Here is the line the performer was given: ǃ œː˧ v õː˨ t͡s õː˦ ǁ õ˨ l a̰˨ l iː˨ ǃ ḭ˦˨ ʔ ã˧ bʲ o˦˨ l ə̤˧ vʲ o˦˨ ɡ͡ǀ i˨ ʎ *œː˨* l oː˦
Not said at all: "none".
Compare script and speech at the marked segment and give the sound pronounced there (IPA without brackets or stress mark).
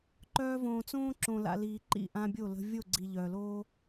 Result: œː˨